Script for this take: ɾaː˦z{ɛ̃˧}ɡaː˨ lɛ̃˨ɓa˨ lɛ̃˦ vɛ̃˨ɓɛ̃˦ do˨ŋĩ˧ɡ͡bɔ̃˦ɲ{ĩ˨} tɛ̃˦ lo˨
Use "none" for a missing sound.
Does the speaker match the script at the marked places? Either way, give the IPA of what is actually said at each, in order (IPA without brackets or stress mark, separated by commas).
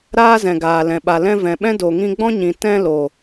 ɛ̃˨, ĩ˨